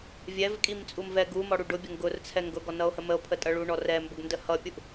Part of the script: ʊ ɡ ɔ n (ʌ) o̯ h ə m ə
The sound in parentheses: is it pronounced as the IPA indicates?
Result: yes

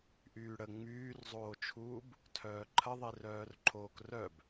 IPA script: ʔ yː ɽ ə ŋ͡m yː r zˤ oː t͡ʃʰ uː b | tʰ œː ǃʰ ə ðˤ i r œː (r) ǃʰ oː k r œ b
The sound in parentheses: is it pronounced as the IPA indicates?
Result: yes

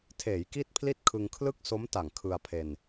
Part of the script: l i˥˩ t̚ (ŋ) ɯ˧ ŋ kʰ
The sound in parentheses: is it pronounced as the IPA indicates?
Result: no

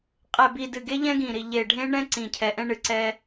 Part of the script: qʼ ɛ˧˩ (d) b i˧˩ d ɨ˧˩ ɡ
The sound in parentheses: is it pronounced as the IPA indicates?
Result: no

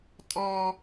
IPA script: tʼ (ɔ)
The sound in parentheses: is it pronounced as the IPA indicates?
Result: yes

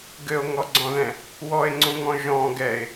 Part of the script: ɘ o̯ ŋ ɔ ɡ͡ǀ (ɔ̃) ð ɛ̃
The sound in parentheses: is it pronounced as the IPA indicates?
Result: yes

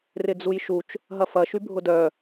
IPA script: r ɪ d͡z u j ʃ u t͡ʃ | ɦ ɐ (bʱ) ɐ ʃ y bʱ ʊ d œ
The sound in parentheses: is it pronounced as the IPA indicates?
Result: no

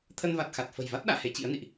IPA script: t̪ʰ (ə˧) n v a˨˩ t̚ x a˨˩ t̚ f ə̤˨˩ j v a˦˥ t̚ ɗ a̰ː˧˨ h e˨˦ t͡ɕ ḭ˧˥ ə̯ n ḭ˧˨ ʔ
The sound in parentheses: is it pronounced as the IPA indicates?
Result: yes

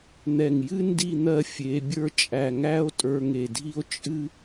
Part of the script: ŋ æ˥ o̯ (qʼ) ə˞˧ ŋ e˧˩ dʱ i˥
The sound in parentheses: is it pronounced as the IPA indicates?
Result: no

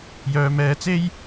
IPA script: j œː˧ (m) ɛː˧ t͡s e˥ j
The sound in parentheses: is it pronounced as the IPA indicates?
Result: yes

